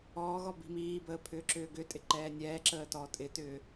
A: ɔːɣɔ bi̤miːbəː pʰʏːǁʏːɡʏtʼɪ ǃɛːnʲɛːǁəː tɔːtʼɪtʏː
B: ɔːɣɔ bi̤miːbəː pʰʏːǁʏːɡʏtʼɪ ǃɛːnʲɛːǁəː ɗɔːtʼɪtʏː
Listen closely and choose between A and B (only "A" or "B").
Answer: A